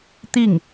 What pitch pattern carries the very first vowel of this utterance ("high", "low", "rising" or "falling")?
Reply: falling